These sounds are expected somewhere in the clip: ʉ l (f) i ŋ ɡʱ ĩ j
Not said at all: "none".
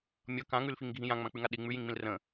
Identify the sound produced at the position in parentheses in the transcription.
f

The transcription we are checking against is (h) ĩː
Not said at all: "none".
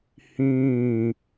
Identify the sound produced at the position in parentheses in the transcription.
h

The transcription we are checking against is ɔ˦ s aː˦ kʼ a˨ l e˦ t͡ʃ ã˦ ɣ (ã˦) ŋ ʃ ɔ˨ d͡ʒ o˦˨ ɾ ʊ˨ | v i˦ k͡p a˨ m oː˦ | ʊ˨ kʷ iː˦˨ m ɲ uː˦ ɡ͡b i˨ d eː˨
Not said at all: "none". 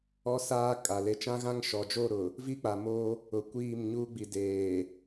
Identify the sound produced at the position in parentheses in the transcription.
ã˦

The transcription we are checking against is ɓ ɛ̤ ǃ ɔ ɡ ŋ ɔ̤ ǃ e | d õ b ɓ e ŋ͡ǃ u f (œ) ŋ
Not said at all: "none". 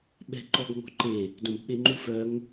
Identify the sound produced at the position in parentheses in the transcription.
œ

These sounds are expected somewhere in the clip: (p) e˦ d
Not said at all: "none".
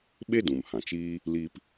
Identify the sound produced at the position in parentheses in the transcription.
ɓ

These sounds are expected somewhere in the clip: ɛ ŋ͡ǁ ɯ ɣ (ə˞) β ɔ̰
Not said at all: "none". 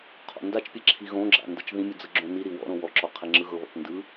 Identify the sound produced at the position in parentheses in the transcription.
ɤ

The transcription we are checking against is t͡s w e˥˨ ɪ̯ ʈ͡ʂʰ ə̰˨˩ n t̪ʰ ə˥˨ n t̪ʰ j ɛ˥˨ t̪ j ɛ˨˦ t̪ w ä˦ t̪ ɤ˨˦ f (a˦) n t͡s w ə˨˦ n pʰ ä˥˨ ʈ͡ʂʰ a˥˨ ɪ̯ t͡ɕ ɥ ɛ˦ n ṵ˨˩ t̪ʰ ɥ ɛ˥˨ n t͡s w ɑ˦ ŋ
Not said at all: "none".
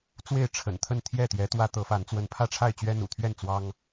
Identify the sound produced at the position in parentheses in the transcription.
a˨˦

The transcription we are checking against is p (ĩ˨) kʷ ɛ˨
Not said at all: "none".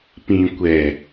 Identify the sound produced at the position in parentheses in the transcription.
ĩ˨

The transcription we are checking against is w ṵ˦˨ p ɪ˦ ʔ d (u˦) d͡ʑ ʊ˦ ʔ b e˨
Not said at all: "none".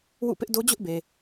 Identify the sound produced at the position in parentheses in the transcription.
o˦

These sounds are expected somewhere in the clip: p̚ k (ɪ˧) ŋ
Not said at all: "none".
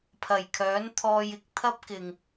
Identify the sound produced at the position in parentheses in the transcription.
ɪ˨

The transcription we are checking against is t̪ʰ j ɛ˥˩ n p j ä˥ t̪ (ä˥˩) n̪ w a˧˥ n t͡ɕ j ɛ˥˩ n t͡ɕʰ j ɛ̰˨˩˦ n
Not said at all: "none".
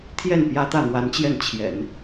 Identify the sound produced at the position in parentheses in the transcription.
ä˥˩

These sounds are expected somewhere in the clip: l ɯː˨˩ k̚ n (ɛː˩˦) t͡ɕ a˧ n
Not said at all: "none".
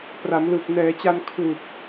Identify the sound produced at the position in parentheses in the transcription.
ɛː˩˦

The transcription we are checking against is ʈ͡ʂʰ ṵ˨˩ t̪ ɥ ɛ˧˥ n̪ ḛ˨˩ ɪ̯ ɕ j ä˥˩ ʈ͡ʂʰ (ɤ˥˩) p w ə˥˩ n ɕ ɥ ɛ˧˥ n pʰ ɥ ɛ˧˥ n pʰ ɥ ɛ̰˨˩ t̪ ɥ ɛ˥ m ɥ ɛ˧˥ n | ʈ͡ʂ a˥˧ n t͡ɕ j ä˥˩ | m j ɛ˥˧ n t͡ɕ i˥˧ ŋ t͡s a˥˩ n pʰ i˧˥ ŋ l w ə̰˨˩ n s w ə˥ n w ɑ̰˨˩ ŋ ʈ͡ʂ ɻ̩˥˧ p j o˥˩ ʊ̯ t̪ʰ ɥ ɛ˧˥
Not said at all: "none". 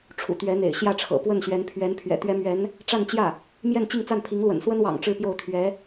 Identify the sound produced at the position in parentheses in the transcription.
ɤ̰˨˩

